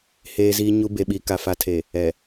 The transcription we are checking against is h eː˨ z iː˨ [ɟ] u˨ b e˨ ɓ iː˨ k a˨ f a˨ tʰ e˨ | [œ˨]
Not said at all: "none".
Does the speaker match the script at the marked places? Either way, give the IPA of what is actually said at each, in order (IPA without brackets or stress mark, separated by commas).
ɲ, ɛ˨